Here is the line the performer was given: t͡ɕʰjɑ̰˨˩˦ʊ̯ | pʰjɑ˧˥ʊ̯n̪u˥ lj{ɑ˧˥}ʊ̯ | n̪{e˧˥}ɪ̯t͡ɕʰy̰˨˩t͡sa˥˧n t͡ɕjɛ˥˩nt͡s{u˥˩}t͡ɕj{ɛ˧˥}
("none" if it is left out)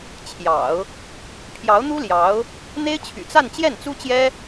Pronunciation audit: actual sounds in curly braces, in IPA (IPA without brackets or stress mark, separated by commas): ɑ˧˥, e˥, u˥, ɛ˥